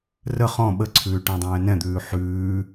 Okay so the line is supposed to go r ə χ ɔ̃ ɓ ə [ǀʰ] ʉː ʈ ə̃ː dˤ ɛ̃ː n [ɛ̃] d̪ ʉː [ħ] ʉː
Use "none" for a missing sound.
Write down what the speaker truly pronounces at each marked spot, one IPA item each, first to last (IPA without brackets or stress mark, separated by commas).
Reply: ǀʰ, ɛ̃, ħ